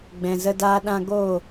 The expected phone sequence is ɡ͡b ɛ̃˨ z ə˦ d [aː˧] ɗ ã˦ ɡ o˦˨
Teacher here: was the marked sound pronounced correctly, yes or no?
no